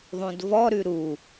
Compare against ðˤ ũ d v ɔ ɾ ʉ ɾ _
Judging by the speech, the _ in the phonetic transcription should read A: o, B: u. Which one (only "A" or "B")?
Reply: B